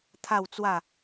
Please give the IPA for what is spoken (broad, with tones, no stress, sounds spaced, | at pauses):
t̪ʰ a˥˧ w t͡s w a˥˧